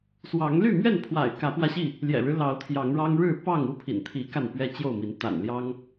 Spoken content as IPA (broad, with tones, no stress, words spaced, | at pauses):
swɑ˨˦ŋly˥˨mɥɛ˥˨npʰwa̰˨˩ɪ̯ kä˨˦pwä˧ɕi˥˨ | ljɛ̰˨˩ɻɻ̩˦ lɑ˨˦ʊ̯t̪ʰjɑ˨˦ŋɻɑ˦ŋ ɻɻ̩˥˨ pɑ˥˨ŋu˦pʰḭ˨˩nt̪ʰi˨˦ ka˥˨npɥɛ˦t͡ɕjo˥˨ʊ̯mi˨˦n t̪a̰˨˩nljɑ˦ŋ